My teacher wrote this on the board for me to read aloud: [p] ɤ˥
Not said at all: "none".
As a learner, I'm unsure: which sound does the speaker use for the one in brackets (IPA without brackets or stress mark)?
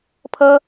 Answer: pʰ